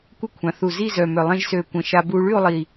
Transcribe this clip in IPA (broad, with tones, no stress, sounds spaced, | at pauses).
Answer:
kʷ ə˥˩ kʷʰ ã˩˧ θ u˨˩ z i˥˧ z œ˨˩ m œ˨˩ lˠ ẽ˧ ʒ s ø˨˩ kʷ ə̃˨˩ ʃ a˧ b u˧ ɭ y˥˧ o̯ lˠ i˨˩